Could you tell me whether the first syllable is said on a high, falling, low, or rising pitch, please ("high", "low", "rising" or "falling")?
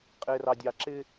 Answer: high